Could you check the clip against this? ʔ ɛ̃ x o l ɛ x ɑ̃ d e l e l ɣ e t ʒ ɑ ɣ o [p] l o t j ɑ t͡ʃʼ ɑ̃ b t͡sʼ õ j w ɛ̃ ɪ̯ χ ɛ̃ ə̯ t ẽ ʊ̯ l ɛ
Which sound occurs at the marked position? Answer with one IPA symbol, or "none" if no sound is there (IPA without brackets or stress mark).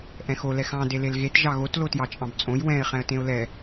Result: t